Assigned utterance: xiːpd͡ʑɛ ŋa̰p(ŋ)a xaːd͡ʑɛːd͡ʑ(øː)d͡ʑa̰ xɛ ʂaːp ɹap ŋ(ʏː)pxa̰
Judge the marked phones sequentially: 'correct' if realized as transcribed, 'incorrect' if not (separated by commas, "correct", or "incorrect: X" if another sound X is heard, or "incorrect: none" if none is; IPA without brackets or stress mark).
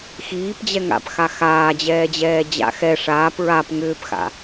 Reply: incorrect: x, incorrect: ɛː, correct